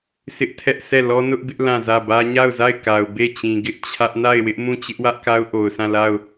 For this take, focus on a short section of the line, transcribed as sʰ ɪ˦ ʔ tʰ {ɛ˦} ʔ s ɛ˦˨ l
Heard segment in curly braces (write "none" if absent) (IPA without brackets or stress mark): ɛ˦